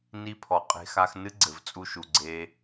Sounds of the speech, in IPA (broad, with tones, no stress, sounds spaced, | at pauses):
n i˧ pʰ ɔ˨ qʼ e̤˧ x a˧ x n ɨ˦ ɡ͡ǀ ɘ˨ v t͡sʼ u˧ ʃ u˨ ɡ͡ǀ e˧